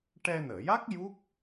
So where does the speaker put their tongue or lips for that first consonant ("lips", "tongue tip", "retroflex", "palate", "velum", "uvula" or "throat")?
retroflex